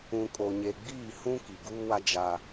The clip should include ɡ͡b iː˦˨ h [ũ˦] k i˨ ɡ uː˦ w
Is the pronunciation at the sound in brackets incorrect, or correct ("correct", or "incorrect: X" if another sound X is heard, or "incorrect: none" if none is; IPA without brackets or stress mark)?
correct